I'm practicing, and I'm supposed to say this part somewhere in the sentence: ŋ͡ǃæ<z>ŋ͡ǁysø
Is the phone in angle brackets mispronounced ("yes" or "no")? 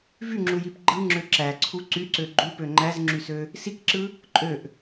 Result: no